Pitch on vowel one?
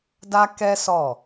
high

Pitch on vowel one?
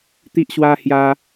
high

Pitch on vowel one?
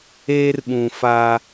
high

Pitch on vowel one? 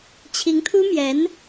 rising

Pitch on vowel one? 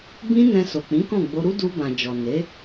high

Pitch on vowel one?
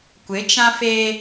rising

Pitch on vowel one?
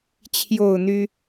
falling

